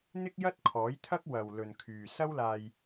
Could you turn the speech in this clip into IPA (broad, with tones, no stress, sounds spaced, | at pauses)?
n̪ ɪ˥ k̚ j ɐ˥ t̚ kʰ ɔː˨˥ j t̪ʰ ɐ˥ k̚ w ɐ˨ w l ɵ˨ n kʰ yː˨ s ɐ˥ w l aː˧ j